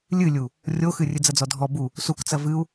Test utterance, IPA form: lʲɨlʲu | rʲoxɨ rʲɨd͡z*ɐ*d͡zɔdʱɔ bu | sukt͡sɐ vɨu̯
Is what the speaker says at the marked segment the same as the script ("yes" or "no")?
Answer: yes